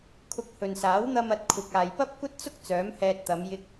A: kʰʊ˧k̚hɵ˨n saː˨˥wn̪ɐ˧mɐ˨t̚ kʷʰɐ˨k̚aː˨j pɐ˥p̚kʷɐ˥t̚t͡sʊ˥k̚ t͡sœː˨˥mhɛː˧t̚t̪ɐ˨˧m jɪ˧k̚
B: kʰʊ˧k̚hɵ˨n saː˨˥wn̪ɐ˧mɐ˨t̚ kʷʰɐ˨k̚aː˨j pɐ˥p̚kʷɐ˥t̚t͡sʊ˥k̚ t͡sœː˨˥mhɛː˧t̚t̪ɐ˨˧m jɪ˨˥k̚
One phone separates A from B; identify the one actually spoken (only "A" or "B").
A